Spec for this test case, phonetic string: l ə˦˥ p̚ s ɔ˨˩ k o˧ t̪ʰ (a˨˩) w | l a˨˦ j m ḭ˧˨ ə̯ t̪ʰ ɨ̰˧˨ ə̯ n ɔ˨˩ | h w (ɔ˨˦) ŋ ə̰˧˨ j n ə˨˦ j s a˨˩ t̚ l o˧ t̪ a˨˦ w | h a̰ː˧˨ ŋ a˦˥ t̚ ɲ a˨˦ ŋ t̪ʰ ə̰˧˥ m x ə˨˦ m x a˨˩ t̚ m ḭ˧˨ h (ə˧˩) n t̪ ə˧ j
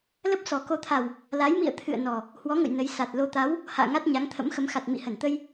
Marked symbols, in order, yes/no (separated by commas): yes, yes, yes